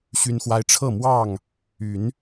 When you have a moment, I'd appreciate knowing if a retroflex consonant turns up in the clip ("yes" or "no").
yes